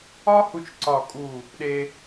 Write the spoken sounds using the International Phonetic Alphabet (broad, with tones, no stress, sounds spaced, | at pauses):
ɒ˥ h u˧ t͡ʃ ǀ ɒ˧˩ kʼ u˧˩ | ɗ e˧